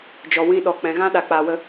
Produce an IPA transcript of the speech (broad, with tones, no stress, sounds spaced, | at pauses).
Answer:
d͡ʒ ɔ˨ w ĩ˧ ɗ ɔ˨ k͡p ɛ̃˨ ɣ ã˦ ɗ a˨ k͡p a˨ w ə˧